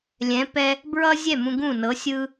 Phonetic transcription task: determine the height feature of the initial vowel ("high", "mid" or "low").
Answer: mid